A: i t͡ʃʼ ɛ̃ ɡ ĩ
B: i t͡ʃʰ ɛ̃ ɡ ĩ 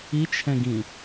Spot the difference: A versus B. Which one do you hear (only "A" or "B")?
B